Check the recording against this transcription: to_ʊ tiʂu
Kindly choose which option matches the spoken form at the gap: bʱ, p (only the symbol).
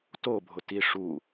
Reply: bʱ